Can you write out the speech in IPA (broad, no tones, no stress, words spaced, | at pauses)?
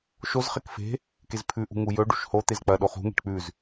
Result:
ʃozχek fe̤ | kezpʰʉʔṳ ŋujɵɖṳʃ hot̪ez k͡pɐ ɗoχṳŋe̤ʈ k͡pʉz